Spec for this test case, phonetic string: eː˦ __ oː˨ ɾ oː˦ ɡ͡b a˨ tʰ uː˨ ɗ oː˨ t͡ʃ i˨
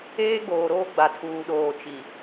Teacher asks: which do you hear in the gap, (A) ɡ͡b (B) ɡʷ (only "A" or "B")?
A